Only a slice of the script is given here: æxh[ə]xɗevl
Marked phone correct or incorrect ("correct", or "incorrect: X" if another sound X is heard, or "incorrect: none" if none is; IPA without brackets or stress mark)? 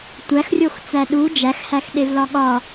incorrect: æ